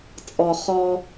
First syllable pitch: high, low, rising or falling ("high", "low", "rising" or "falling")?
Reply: low